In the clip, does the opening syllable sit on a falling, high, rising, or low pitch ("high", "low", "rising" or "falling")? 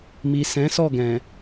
low